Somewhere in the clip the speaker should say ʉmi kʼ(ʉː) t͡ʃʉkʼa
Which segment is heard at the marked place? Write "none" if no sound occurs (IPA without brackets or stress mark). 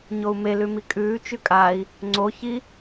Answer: ʉː